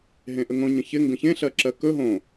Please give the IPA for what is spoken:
ɦẽʔəŋõ ɲə̃çɪ ŋɡə̃çẽ ɬɜǁɜkɵ ɦõ

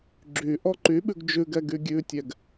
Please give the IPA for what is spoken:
ɡ͡ǁy ʔɔǃyɓʉɡ d͡ʒʉɡɛ ɡyɡʲʉtʲɛɡ

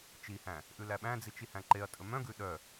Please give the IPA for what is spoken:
t͡ʃihæ̃ | ʔʉlæɓæ̃d͡zit͡ʃ ihæ̃ǃeɐ̯tʼɵ mœ̃ɡʉ ɗœ

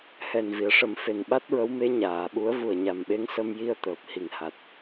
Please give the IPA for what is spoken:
hɛ˨˩nvi˨˩˨ə̯ʂə˨˩˦m fe˨˩nɓa˦˥t̚ɹə˧˥wme˧˥ ɲaː˨˩˨ɓu˧˥ə̯vu˨˩ə̯ ɲa˨˩mɓe˧˥ŋ sə˧mji˧ə̯ t̪əː˨˩p̚hi˨˩ŋha˨˩t̚

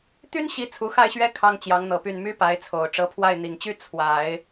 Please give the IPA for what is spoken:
t̪y˥nɕi˧˥ t͡sʰu˧˥xa˥˩ɪ̯ɕɥɛ˥ kʰɑ˥ŋt͡ɕjɑ˧˥ŋn̪ɤ˨˩py˥˩n my˥pa˧˥ɪ̯t͡sʰo˨˩ʊ̯ ʈ͡ʂɤ˧˥pʰwa˥˩ɪ̯n̪i˨˩ŋt͡ɕy˥ t͡sʰwa˨˩˦ɪ̯

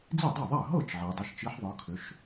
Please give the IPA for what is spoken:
d͡zi˥˩dˤa˥˩ðˤa˥˩ə̯ ɦɤ˥˩t͡ʃ ʕi˩˧ dˤɘ˩˧˩ʃt͡ʃi˨˥ħðˤɤ˩˧kʰʏ˩˧ʃ

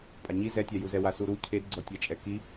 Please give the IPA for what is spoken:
pʼaɲi zɛtʲajuzɛ wasuɾu cʰedɡ͡ǀɔtʲat͡ʃʼɛ ki

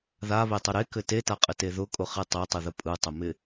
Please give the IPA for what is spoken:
ðaβetˤʊ ɾekɘ tetaqʼɪte ðʊkʼʊχe tˤetˤɯðə pʼɯtˤɘmɪ

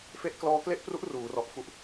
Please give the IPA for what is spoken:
fe˥˩ʔ klɔː˦˥ kle˥˩ʔpru˦˥ʔ ruː˩˦rɔ˨˩ʔ fu˨˩ʔ

